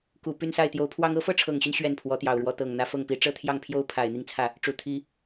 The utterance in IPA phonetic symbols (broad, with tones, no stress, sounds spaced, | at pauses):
k u˨˩ p y˥˧ n s a˥˩ ɪ̯ t̪ j o˧˥ ʊ̯ pʰ w ɑ˥ ŋ ɤ˧˥ f ɤ˥˩ ʈ͡ʂʰ ɤ˨˩ ŋ ɕ y˦ n ɕ ɥ ɛ˥˩ n pʰ w ɔ˧˥ t̪ j ɑ˨˩ ʊ̯ ɻ w ɔ˧˥ t̪ ɤ˨˩ ŋ n̪ ä˧˥ f ɤ˥˩ ŋ p i˧˥ ʈ͡ʂ ɤ˥ t̪ʰ j ɑ˥˩ ŋ pʰ j o˥ ʊ̯ pʰ a˨˩ ɪ̯ n̪ i˥˧ ŋ t͡sʰ ä˥˩ | ʈ͡ʂ u˨˩ t̪ʰ i˥